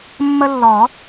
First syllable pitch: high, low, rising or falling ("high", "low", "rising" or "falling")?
high